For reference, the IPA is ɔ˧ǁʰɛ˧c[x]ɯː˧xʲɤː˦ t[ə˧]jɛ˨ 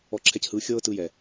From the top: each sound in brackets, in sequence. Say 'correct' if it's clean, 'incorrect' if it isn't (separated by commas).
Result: incorrect, incorrect